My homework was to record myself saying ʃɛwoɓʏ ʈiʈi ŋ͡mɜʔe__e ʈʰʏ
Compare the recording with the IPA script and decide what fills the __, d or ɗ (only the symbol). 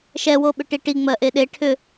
ɗ